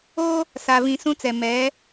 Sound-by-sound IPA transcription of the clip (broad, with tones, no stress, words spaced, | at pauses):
o˦ | sa˨vĩ˨ sũ˦t͡sɛ˨ mɛ˨˦